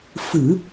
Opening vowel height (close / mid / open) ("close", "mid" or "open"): close